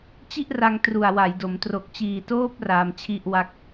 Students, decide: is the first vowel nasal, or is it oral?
oral